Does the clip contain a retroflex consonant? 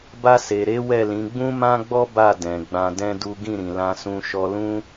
no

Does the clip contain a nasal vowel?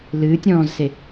yes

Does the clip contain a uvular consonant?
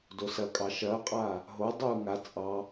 yes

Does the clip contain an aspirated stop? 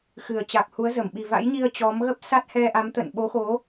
no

